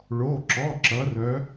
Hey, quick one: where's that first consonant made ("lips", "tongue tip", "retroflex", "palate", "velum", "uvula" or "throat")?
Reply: retroflex